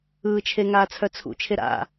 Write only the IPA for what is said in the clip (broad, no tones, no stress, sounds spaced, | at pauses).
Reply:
ɯː t͡ʃʰ e ŋ aː t͡sʰ œ t͡sʰ ṵ t͡ʃʰ e ɾ a̰